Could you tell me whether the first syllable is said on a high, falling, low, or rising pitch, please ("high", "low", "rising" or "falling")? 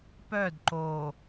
falling